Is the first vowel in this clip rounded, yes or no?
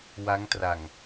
no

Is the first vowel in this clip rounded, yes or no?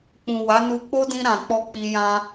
yes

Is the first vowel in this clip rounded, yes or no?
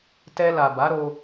no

